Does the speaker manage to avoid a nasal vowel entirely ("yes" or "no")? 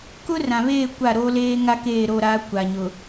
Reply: no